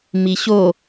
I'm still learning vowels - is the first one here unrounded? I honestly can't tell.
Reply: yes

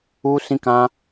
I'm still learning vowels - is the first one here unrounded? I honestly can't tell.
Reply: no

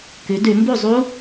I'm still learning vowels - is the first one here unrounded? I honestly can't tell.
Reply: no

